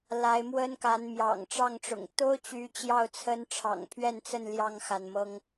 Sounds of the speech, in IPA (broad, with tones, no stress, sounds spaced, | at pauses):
l a˨˦ ɪ̯ m w ə˦ n k a˨˦ n m j ɑ̰˨˩ ŋ ʈ͡ʂ ɑ˥˨ ŋ ʈ͡ʂ ʊ̰˨˩ ŋ t̪ o˦ ʊ̯ t͡ɕ y˨˦ t͡ɕ j ɑ˥˨ ʊ̯ t͡sʰ ə˦ n ʈ͡ʂʰ ɑ̰˨˩ ŋ pʰ ɥ ɛ˥˨ n t͡s ə˥˨ n l j ɑ˥˨ ŋ x a˩ n m ɤ˦ ŋ